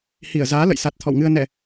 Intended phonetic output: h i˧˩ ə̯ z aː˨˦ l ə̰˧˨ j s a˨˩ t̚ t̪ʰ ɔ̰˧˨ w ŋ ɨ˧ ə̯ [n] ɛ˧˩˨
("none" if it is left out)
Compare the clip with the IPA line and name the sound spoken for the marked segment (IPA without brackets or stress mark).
n